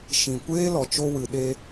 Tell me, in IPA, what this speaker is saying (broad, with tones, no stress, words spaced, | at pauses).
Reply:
ʃĩ˨kʷeː˦lɔ˨ t͡ʃo˧wɨ˨ ɗe˧